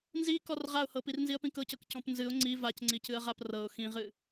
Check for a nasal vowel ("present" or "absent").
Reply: present